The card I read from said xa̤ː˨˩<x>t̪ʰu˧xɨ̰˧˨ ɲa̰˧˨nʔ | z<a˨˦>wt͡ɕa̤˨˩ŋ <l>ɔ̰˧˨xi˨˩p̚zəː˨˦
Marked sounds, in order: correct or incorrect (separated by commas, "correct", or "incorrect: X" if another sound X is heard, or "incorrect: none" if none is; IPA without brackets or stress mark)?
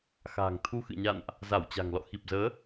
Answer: incorrect: ŋ, incorrect: a˧˩, correct